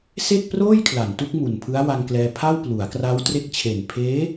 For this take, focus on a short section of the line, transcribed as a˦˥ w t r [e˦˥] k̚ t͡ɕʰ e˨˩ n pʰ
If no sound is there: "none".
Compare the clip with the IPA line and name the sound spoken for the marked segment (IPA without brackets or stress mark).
e˦˥